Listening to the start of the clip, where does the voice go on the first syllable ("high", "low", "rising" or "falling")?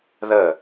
falling